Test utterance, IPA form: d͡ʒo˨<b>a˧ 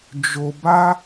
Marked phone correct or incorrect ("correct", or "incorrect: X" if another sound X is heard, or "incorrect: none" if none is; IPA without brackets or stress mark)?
correct